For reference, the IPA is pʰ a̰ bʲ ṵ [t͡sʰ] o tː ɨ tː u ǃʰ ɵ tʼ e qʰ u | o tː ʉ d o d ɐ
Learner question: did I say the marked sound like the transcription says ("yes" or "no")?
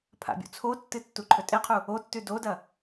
yes